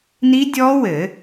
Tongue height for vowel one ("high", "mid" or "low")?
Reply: high